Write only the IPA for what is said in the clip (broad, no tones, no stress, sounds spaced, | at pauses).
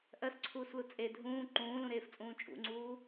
ʔ ɜ s ǀʰ uː s l u t͡sʼ e dʱ ũː ǃ ũː l ũ ɾ eː f t͡sʼ ũː t͡ʃʼ ṵ ŋ͡ǀ uː